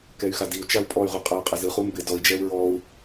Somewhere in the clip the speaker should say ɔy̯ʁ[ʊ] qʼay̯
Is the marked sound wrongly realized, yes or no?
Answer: yes